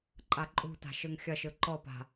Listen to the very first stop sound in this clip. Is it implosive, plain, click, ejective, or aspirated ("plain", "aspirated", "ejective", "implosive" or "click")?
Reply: click